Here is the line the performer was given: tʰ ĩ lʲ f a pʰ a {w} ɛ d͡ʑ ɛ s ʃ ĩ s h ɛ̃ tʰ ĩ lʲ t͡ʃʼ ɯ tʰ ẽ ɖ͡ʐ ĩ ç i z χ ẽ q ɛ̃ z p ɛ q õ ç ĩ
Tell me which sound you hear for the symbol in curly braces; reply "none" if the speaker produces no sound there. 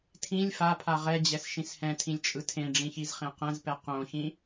ʁ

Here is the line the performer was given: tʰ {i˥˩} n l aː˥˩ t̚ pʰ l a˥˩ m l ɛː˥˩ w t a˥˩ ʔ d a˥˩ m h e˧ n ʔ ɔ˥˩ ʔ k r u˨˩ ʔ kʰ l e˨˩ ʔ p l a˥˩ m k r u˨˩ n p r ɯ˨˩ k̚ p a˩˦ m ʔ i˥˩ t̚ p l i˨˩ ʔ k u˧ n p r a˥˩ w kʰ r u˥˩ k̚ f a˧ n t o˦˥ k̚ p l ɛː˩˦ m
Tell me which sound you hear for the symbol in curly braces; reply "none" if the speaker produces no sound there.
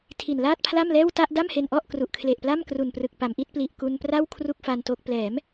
i˨˩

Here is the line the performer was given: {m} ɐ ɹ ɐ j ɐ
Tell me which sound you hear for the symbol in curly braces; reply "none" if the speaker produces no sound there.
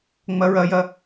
ŋ͡m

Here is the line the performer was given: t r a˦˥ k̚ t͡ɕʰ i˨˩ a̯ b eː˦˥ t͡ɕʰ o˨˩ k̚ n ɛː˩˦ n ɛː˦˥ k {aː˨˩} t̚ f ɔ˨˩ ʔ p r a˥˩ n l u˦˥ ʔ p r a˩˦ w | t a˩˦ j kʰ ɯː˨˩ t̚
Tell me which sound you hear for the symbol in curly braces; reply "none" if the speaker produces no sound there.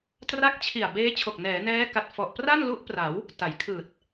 a˨˩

